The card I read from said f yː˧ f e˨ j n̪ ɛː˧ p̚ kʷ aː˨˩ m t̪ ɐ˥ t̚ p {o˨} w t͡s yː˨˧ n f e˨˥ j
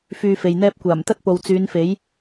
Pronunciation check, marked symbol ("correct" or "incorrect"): correct